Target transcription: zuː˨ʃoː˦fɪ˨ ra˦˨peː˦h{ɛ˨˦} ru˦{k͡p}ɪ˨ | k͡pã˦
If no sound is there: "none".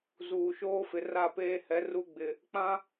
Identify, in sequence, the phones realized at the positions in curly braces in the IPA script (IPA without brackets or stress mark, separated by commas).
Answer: ɛ˨˦, ɡ͡b